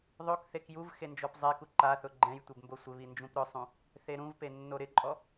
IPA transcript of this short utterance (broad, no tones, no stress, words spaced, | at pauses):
ðˤokθek juv xend͡ʒɔpzˤɛku ǃaθʊ ɡ͡ǃɛ̃jtʷɪb mbosʷɪβi nd͡ʒũpɾʊsˤũ | θeɾũvpe nːoɾɪǃʼɔ